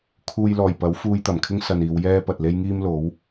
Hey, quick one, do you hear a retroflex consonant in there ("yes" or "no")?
no